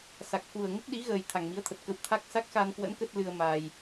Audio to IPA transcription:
s a˨˩ k̚ x u˨˩ ə̯ ŋ ə˦˥ p̚ ɗ i˨˦ ɣ əː˨˩ j t̪ʰ a˨˩ ŋ m i˨˦ ə̯ t̪ʰ ə˨˩ t̚ k ə˧ w t̪ʰ a˦˥ k̚ s a˦˥ k̚ x a˧ n k w ə̰˧˥ n k ə˦˥ t̚ l ɨ˧ ə̯ m a˧ j

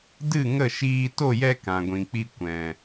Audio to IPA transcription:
d ɨ˦˨ ŋ ə˦˨ ʃ iː˧ t o˦˨ j ɛ˧ k ã˨ ɡʷ ĩ˨ k͡p i˧ kʷ ɛ̃˨

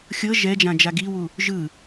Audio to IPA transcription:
xʲ ɤ ʒ ɛ d͡ʒ ã d͡ʒ a ɡ i w u | ʒ ɯ

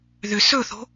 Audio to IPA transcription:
ð ʏ s ɵ θ o̤

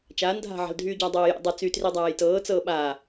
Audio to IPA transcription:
t͡ʃ aː n dʱ a̤ ʕ a̤ l dʱ yː ɟ a dˤ ɤː j ḛ dˤ ɤ t͡s y t r i dˤ aː j t ɤː t͡s ɤː ɓ a

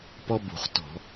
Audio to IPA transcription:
p ɔ˥ b ṳ˧˩˧ χ t ɔ̤˧˩˧

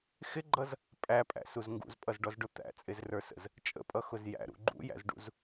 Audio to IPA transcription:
x ɪ ɡ͡ǃ ʌ z | pʼ æ pʼ æ̰ s u z ŋ ɡ ṵ z pʼ ʌ z ɖ ɔ z ɖ ʊ t̪ æ̰ t͡sʼ ɪ z r ə˞ s ə̰ z | t͡ʃʼ ə̰ pʼ ʌ x ʊ z j æ̰ ɾ ṵ ɡ͡ǃ ṵ j æ̰ z ɖ ṵ z

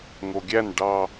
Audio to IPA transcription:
ŋ o ɡʲ æ n ɖ ɑ

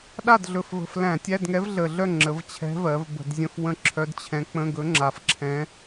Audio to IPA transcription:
ɗ a˥˨ d ɮ ɵ˨˩ f v ə̤˨˩ f l æ̃˧˩˧ tʲ æ˧˥˧ d ŋ ɛ˧˥ v ɮ ə˨˩ ɮ œ˥˨ ŋ͡ǁ ə˩˧ v t͡ɕʰ ɛ̤˧˥ v ɜ˩˧ v b ə̤˧˩˧ d zʲ ə̃˧˥˧ f w ə̃˥˨ ǁʰ œ˧˥ d t͡ɕʰ ɛ̃˧˥ k͡p ə̃˧˥˧ ɡ ɵ˧˥ ŋ͡ǁ a˨˩ f ǁʰ ɛ̃˧˥

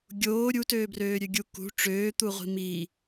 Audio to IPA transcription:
ɡʲ oː ɾʲ u t øː b r øː ɾʲ ø ɡʲ u k ṳ ʈ͡ʂ øː t̪ u ʁʷ i̤ m i

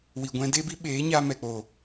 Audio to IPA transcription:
w i˨ ɡʷ ɛ̃˧ d e˦ b i˦ ɓ eː˨˦ ɲ a˧ m ɛ˨ k͡p o˨

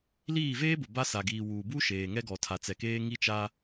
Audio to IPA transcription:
l iː˦˨ v eː˦ b ʊ˨ b a˦ s a˨ ɡ iː˨ w uː˨ b u˦ ʃ eː˨ ŋ ɛ˦ ɡ ɔ˨ tʰ a˨ t͡s ɛ˨ k eː˦ ŋ i˦ t͡ʃ a˦

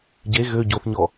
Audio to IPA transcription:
ɟ e ɣ ø ɟ o θ ɲ ɔ

